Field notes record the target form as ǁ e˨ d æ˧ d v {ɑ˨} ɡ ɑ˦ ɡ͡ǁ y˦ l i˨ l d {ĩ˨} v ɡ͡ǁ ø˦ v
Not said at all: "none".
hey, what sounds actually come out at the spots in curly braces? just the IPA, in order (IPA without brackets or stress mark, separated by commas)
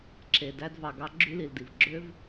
ɑ˨, i˨